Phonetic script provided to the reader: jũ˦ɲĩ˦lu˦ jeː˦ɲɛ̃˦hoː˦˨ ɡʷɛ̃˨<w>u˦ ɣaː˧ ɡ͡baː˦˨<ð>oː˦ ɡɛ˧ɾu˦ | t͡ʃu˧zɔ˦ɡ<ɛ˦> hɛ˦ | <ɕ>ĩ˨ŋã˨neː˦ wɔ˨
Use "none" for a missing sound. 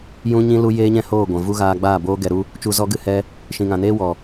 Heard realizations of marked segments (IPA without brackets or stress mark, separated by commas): v, b, ɨ˦, ʃ